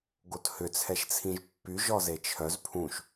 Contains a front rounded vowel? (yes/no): yes